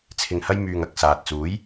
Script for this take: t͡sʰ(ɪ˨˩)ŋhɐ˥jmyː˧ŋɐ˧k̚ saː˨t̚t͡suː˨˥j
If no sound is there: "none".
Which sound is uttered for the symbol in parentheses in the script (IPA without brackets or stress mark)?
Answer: ɪ˧